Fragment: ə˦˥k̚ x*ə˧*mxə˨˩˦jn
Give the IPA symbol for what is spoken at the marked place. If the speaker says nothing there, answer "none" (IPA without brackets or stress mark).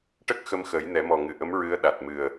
ə˧